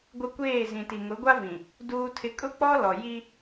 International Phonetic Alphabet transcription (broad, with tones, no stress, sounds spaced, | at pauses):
ɡʷ ɪ˦ kʷ eː˦˨ z ĩ˨ t i˨ ŋ ʊ˨˦ ɡʷ a˦ v ĩ˨ | d uː˦ tʰ ɪ˦ kʼ ʊ˦ k͡p ɔ˦ l ɔ˨ j i˦